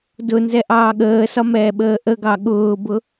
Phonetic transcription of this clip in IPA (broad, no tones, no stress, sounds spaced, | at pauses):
d ʊ n z ɛ ʔ ɑː ɠ əː s ɒ m ɛː ɓ əː ʔ ə ɡ ɑ ɠ ʊː b ʊ